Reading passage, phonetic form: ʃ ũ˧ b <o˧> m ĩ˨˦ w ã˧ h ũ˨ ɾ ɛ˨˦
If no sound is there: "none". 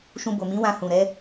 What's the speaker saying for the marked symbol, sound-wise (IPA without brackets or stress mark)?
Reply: o˨